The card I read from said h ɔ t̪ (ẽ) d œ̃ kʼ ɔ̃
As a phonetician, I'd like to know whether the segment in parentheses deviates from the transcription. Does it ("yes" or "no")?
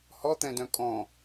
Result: yes